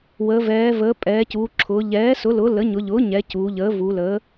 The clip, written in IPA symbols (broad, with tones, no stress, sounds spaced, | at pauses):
w əː˩˧ v ɛː˩˧ v əː˩˧ pʼ ɛː˩˧ c uː˩˧ ǁʰ ʊː˩˧ ʎ ɛː˩˥ s ʊ˩˥ l ʊ˩˥ l ə˩˥ ɲ ʊ˩˧ ʎ ʊː˩˥ ɲ ɛ˩˧ c uː˩˧ ʎ əː˩˥ v u˩˧ l əː˩˥